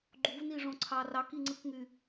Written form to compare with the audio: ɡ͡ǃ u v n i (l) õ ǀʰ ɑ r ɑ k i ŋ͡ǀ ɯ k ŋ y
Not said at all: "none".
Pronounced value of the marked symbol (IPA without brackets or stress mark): ʐ